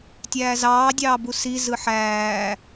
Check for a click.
absent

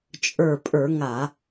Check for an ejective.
present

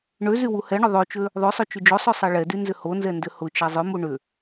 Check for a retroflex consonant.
present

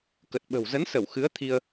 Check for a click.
absent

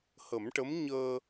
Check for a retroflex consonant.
present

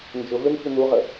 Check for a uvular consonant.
present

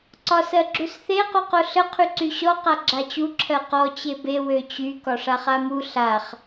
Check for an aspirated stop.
present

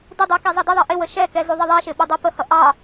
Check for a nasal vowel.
absent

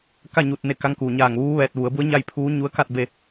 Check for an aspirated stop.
present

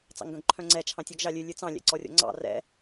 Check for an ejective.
absent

